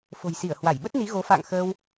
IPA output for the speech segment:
f o̤˨˩ j s i˧˩ ə̯ h w a˧˩ j ɓ ə˦˥ t̚ n i˨˦ ɣ o˨˦ f a̰ː˧˨ ŋ x əː˧ w

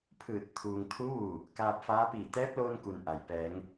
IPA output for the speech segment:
pʰ ɯː˧˩ t̚ t̪ʰ uː˧ ŋ t̪ʰ u˧˥ ʋ u˧˩ | k aː˧ p̚ f aː˧˥ p iː˧˩ t̪ ɛː˧˥ p̚ l oː˧ n k u˩ n ʔ a˩ j p ɛː˩˧ ŋ

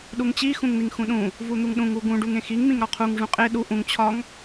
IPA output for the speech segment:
ɗ u ŋ t͡ɕ i x ũ ŋ n̪ i ŋ x ũ ɗ ũ | v u n̪ u ŋ ɗ ũ ŋ u ɡ ũ ɖ u ŋ ẽ x i ŋ m ĩ ŋ ɾ ɒ qʰ u ŋ ʐ ũ qʼ e ɗ u ʔ ũ ŋ t͡ɕʰ ɒ ŋ

